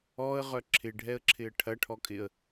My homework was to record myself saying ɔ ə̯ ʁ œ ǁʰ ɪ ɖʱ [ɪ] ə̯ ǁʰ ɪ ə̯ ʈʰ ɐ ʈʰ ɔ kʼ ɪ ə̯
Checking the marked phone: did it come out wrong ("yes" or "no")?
yes